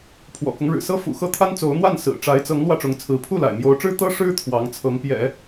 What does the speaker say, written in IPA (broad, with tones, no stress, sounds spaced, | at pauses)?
pʰ w ɔ̰˨˩ k ʊ˦ ŋ ɻ ɻ̩˨˩ s ɤ˥ f ṵ˨˩ x ɤ˥˩ t̪ʰ a˥ n t͡s o˧˥ ʊ̯ n̪ w a˥˩ n s ɹ̩˨˩ ʈ͡ʂ a˧˥ ɪ̯ t͡s ɤ˧˥ ŋ l w ä˥˩ ʈ͡ʂ ʊ˧˥ ŋ t͡sʰ ɹ̩˧˥ pʰ u˥˩ l a̰˨˩ ɪ̯ m j o˧˥ ʊ̯ ʈ͡ʂ ɻ̩˥ t̪ ɤ˥ ʂ ɻ̩˥ t̪ʰ w ɑ˧˥ ŋ t͡sʰ ɤ˧˥ ŋ p j ɛ̰˨˩˦